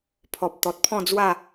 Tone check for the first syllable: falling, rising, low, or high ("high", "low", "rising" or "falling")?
low